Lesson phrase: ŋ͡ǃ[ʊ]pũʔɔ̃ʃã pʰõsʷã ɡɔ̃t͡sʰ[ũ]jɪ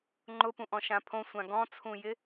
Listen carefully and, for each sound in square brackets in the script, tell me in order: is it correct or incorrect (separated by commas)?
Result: correct, correct